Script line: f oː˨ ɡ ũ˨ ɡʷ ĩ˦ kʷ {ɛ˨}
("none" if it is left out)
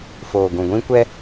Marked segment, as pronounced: ɛ˦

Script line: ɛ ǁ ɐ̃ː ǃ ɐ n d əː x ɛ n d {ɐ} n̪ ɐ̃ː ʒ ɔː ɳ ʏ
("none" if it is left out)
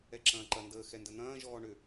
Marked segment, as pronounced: ə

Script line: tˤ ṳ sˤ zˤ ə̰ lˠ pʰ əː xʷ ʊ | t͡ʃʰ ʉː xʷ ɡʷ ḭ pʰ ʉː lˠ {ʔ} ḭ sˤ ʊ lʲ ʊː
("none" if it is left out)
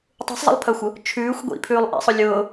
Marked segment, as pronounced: ʔ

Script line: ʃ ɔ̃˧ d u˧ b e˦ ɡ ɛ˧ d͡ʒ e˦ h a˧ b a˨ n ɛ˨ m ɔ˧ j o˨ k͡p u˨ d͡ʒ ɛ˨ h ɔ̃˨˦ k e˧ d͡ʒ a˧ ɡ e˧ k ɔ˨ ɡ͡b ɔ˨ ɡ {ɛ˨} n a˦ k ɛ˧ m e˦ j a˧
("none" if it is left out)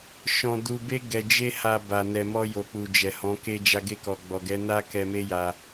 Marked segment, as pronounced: ɛ˨˦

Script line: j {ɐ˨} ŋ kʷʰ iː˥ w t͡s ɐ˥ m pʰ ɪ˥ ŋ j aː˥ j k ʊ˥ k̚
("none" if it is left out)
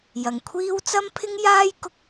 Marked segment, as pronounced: ɐ˨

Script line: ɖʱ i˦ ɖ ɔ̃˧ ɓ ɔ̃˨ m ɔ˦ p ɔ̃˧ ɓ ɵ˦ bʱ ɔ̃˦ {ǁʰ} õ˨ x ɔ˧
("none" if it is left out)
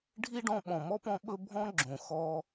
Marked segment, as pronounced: ɡ͡ǁ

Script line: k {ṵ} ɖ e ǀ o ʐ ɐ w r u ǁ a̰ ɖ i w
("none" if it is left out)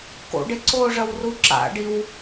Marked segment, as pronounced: o̰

